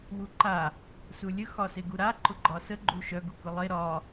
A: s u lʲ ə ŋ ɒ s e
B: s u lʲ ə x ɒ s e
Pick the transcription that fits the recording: B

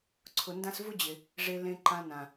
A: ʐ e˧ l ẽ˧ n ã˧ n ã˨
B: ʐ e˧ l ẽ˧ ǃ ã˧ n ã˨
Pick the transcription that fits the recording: B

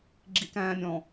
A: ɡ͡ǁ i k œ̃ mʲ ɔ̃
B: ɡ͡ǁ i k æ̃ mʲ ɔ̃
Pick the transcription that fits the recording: B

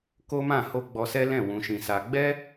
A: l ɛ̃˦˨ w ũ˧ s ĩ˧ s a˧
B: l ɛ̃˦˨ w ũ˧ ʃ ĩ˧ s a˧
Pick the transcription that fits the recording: B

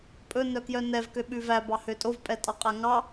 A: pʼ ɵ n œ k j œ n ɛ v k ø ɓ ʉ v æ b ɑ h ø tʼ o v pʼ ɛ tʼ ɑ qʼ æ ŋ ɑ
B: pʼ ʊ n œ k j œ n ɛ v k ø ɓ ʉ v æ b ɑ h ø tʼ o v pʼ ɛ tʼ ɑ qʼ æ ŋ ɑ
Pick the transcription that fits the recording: A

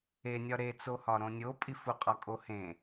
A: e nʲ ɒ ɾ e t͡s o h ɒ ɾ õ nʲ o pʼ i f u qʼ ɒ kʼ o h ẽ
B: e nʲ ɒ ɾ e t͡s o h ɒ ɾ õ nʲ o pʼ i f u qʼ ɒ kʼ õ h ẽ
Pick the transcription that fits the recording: A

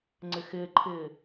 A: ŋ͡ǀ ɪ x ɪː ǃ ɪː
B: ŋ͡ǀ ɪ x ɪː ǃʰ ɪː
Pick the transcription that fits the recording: B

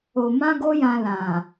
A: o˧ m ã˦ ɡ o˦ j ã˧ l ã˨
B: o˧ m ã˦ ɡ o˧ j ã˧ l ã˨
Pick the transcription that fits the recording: A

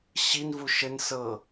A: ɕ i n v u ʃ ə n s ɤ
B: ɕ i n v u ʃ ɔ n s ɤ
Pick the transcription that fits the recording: A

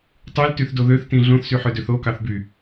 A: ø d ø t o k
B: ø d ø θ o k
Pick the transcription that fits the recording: B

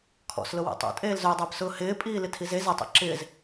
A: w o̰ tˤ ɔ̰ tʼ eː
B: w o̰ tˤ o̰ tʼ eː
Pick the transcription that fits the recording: B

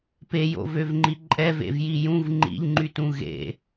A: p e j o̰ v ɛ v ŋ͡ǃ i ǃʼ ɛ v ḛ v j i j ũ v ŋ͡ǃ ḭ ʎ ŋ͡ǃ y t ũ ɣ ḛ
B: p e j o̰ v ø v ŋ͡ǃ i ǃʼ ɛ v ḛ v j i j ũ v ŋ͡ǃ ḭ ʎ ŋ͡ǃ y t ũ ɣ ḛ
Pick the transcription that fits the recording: B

